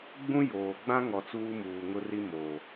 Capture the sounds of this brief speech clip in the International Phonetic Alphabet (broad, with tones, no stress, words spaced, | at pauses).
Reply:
ɡ͡bũ˦ joː˨ ɡ͡bã˦ŋɔ˨ t͡suː˦muː˨ ŋʊ˦ri˦ moː˨